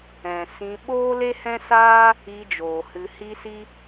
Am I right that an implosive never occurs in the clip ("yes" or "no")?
no